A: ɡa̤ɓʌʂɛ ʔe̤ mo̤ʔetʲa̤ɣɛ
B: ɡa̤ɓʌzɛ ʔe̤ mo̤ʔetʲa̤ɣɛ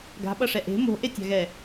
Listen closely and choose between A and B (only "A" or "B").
A